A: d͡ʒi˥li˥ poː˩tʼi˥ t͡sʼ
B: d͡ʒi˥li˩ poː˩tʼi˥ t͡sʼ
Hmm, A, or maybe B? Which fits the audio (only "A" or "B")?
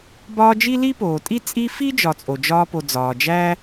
A